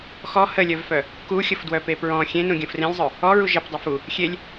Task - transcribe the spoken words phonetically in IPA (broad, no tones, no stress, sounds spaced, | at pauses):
x ɔ h ə lʲ œ v f œ | k u xʲ ə f d w œ p e p ɹ ɔ̃ xʲ ẽ n ũ ɡʲ ə̃ f r ẽ lʲ zˤ œ | ɔ ɹ u ʒ ə p dˤ e f u | xʲ e lʲ